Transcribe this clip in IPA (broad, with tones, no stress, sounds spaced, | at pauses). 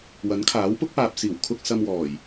w ɐ˨˥ n kʰ aː˨˥ w p ʊ˥ k̚ p aː˨ p̚ s iː˨˩ w kʰ ʊ˧ k̚ s ɐ˧ m w ɔː˨˩ j